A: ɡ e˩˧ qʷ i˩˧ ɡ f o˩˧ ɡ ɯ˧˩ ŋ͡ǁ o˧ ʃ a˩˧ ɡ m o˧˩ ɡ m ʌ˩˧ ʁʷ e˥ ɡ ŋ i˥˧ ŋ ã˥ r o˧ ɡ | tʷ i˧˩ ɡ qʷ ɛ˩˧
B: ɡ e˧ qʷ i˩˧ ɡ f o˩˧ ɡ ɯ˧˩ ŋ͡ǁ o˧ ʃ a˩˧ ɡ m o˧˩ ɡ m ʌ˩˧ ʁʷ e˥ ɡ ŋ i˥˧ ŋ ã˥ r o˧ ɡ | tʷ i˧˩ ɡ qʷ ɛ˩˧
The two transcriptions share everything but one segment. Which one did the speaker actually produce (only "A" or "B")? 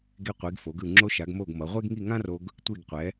B